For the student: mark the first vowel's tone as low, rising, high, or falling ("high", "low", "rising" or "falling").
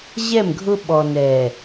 falling